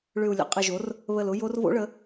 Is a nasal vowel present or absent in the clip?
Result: absent